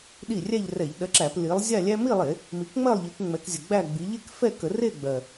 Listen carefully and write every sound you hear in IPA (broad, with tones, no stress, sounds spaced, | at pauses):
ɗ i˥˩ rʲ æ˥˧ ʎ r ɛ˧˩˧ ʎ ɗ ɜ˨˦ ǁ æ˧˩˧ p l i˨˦ lˠ zʲ a˥˧ lʲ æ˥ m i˥˧ lˠ e˧˩˧ | m i˨˦ k ŋ͡m ɜ˥˧ lˠ ʎ i˨˦ k ŋ͡m ɛ˨˦ k zʲ ə˨˩ ɡ͡b æ˥˧ ɡ͡b i˨˦ ʎ e˥˧ k f ɛ˥˧ k ə˧˩˧ r e˥˧ ɡ͡b ɜ˨˩